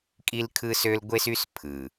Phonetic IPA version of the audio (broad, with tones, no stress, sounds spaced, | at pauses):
kʼ i˦ l kʰ ɯ˦ s ø˦ l ɡʷ e˦ s y˦ s pʰ ɯ˨